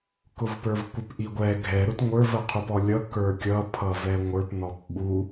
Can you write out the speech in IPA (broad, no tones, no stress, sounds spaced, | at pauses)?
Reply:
k ʊ v p ə˞ v kʷ ɪ p ʔ i ɡʷ ɛ ɡʱ ɛ ɾ ʊ t ŋʷ ə˞ v ə qʰ u p ɔ lʲ ʌ k ə˞ kʲ ʌ pʰ ʌ v ɛ ŋʷ ə˞ p n ɔ p ɓ u